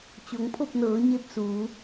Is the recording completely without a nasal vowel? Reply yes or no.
yes